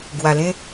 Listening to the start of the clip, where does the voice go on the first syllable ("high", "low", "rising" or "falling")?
low